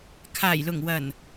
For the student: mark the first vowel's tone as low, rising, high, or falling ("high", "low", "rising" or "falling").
low